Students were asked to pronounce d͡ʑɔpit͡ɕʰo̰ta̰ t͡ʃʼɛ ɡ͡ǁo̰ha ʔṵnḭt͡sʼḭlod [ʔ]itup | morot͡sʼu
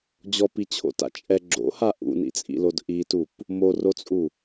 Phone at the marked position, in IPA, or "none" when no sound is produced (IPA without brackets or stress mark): ʔ